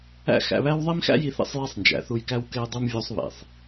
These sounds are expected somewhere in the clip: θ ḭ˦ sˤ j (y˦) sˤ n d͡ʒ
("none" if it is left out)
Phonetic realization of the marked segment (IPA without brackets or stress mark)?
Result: e˦